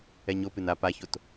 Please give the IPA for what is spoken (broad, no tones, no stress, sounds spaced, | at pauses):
ɛ ɲ o p ɨ n a p a ç o t